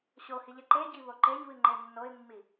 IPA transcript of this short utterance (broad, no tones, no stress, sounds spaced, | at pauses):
ɕ o h i ʎ ɛ ǃ e ɟ i β o ǃ e ɲ β ɨ ŋ͡ǃ e nː o ɪ̯ mː i